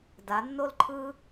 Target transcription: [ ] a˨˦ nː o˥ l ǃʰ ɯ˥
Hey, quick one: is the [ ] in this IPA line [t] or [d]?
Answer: d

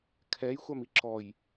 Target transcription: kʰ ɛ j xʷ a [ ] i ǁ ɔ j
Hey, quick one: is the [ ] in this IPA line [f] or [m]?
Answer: m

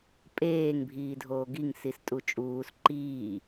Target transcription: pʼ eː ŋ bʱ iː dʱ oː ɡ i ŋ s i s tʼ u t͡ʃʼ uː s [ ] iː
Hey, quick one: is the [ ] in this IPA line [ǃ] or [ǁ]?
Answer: ǃ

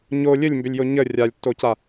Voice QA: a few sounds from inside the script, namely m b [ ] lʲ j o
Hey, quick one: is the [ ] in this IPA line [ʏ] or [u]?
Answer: ʏ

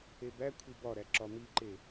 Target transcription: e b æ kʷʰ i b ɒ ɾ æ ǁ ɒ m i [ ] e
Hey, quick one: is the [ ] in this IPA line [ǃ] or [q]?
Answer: ǃ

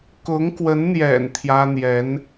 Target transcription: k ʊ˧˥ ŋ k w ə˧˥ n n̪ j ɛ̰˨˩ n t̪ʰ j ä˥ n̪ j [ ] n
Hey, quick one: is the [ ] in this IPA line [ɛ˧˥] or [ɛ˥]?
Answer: ɛ˧˥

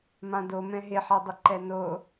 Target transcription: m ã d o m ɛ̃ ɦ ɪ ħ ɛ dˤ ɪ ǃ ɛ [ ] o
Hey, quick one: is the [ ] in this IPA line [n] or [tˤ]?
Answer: n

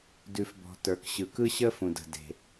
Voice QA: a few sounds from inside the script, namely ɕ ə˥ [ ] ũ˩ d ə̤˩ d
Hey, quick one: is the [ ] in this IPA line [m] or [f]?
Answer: f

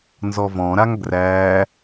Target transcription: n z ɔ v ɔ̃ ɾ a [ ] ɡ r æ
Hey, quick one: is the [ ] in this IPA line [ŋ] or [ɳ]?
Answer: ŋ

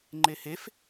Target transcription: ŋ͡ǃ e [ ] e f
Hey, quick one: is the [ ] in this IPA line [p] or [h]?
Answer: h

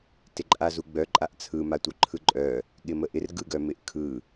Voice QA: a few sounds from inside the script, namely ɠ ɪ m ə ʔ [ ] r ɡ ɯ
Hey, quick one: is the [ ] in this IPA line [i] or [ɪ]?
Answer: ɪ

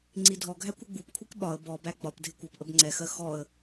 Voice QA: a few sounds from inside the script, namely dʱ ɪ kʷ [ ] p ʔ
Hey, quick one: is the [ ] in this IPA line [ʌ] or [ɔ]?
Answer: ʌ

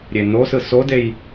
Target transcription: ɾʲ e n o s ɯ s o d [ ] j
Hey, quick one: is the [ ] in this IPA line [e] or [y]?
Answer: e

